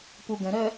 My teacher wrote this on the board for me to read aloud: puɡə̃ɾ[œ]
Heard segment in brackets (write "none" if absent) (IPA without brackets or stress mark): œ